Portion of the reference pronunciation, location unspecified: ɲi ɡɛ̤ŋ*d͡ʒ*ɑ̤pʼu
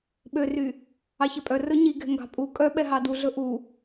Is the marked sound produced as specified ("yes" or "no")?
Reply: no